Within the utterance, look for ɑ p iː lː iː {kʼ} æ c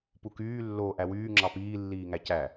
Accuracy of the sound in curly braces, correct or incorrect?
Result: incorrect